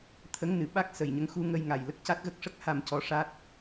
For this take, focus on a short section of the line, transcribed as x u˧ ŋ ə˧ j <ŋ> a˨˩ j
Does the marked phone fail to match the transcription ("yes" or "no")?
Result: no